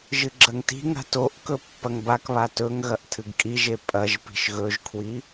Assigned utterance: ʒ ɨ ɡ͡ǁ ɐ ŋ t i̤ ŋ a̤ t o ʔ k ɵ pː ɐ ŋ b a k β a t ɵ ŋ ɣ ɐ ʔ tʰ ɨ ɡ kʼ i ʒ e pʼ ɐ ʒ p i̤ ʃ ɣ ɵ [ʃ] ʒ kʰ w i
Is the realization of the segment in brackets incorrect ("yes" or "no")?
yes